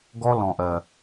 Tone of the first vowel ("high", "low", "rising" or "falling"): high